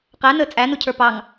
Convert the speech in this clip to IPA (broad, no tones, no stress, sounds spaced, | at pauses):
q æ n əː t͡sʼ æ n u cʰ ə˞ p ɑ ŋ